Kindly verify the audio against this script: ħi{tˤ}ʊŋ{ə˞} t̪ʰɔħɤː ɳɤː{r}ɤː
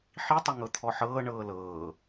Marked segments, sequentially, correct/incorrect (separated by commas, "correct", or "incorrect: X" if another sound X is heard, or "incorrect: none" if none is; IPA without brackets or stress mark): correct, incorrect: ɤ, incorrect: l